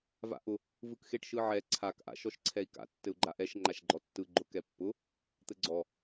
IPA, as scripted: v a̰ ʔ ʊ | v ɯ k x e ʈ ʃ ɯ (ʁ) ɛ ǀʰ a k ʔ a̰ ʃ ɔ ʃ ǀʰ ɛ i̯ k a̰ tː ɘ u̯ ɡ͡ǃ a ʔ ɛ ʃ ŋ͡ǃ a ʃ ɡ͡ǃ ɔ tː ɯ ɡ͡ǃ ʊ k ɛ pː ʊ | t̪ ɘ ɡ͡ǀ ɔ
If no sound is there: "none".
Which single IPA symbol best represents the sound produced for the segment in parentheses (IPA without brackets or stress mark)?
ʕ